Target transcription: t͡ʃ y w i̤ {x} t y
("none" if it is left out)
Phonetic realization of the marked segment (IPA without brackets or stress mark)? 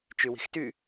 x